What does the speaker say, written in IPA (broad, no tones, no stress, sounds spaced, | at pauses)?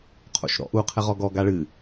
qʰ o̰ ʃ ɾ ɔ̰ ʔ u qʰ ɘ ʁ ɔ ɡ ɔ ɡ a ɭ ɨ